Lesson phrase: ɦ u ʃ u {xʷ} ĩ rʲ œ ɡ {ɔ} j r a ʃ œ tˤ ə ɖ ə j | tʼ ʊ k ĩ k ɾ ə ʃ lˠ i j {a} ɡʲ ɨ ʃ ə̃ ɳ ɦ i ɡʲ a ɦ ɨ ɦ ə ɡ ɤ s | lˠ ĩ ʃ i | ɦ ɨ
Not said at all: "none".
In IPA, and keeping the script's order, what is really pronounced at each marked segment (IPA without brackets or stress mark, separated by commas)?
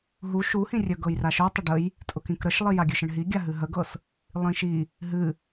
h, ɤ, a